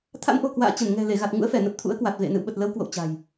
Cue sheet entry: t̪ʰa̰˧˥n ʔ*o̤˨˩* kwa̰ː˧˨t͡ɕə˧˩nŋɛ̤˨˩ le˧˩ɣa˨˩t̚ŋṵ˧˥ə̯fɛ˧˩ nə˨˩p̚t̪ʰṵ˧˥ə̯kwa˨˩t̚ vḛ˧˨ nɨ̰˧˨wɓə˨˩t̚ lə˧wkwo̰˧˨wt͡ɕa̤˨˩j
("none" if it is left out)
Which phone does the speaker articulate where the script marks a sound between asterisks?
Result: o̤˨˩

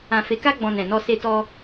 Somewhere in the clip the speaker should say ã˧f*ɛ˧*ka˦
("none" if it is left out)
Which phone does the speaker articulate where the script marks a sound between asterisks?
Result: e˧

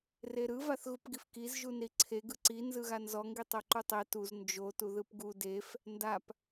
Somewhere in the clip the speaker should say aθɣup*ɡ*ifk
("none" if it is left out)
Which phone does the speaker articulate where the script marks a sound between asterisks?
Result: ɡ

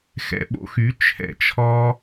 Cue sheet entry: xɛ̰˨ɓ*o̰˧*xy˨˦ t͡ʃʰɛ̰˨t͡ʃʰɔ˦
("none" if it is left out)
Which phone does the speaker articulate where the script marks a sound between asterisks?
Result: o̰˧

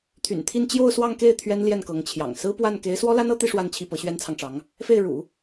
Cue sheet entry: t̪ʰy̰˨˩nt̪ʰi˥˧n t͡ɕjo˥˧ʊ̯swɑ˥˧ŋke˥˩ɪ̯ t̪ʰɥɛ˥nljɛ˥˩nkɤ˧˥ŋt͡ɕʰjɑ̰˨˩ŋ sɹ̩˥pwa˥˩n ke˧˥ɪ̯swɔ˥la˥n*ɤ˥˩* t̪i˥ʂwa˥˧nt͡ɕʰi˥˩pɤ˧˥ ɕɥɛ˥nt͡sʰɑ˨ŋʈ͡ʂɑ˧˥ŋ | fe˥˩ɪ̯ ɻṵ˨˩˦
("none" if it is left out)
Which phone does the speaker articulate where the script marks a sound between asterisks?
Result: ɤ˥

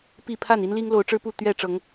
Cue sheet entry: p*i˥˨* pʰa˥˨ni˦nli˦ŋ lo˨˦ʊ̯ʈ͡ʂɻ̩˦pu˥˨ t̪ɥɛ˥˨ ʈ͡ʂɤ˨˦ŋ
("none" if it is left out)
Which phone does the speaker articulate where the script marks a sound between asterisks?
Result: i˥˨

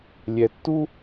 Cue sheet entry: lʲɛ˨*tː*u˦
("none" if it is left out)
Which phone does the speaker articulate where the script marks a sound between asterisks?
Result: tː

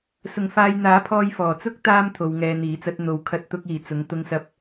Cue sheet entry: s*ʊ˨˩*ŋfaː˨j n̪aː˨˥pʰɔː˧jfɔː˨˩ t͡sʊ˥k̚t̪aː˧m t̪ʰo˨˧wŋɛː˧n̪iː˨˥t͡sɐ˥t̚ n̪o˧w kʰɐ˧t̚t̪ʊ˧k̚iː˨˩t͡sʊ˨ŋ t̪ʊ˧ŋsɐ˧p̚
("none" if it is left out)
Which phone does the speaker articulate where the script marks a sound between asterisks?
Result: ʊ˨˩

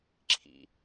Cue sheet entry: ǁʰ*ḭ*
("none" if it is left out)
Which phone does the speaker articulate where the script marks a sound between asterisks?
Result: ḭ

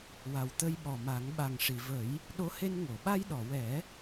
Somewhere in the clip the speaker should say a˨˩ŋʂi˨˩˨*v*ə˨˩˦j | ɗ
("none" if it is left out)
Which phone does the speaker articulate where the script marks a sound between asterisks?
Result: v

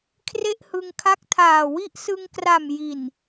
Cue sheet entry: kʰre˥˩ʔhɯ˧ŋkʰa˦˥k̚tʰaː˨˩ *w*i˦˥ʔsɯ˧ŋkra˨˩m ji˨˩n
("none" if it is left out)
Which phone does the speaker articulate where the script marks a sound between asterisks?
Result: w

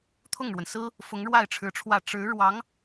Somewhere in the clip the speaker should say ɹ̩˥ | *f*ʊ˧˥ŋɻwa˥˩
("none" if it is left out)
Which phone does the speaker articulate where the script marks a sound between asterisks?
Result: f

